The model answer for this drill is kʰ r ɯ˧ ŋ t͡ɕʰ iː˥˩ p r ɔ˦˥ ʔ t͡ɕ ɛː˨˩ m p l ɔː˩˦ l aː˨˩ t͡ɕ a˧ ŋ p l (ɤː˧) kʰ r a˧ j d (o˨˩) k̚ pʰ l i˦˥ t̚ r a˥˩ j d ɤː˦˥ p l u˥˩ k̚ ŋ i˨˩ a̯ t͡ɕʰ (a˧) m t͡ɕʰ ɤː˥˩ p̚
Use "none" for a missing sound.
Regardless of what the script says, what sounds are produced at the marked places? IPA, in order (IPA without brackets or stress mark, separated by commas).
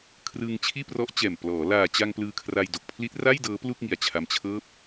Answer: ɯː˧, o˨˩, a˧